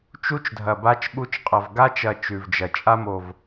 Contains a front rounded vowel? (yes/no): no